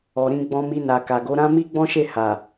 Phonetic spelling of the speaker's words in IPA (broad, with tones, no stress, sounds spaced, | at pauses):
ɔ˨ ɾ ĩ˧ ɡ͡b ɔ̃˧ m i˧ n a˨ k a˨ ɡ o˨˦ ɾ ã˦ m i˦ ɡ͡b ɔ̃˦ ʃ e˦˨ h a˨